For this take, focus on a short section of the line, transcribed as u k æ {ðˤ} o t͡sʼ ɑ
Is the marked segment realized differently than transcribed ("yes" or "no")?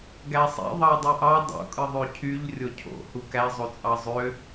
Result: yes